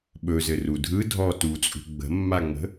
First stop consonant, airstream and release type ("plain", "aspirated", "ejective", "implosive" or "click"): implosive